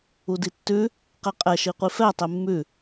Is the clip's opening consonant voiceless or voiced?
voiced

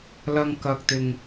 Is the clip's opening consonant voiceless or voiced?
voiced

